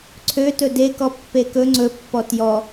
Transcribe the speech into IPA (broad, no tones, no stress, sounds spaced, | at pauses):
ǀʰ ø t ɵ d e k ɔ pː e k ɵ ŋ͡ǀ ɵ pː ɔ t j ɔ